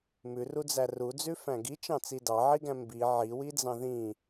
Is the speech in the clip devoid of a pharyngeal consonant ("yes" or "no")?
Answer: no